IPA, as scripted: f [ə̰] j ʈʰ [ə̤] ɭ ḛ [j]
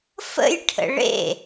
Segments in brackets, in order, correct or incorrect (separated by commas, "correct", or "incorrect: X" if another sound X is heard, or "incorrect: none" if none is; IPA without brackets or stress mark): correct, incorrect: ə̰, incorrect: none